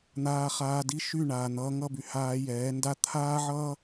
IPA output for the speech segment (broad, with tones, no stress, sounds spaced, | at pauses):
n̪ aː˧ χ aː˧ d i˦ ʃ y˦˨ ɳ aː˨ n̪ ʌː˧ ŋ ʌ˦˨ b y˨ h aː˧ j ɛː˨˦ n d a˦ t̪ʰ aː˦ ʕ ʌː˦